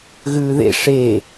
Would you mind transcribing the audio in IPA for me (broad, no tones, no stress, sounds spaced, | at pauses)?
ɣ ʉː ð ḛ ʂ e